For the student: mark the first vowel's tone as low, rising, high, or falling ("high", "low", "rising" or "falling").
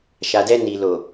low